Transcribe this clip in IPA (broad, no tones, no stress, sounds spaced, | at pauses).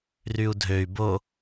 r y u̯ dʱ ø y̯ b o